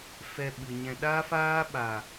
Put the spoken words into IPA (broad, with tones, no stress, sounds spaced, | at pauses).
f ɛ˧ ɓ ɨ˨ ɲ ɛ̃˧ ɗ a˦ f aː˦ ɓ a˨